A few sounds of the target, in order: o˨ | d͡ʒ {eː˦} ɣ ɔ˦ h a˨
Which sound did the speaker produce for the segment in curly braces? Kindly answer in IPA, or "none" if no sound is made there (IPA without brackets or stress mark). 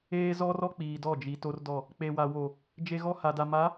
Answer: e˦